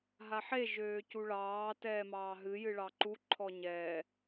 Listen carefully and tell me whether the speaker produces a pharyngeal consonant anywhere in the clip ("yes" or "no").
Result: yes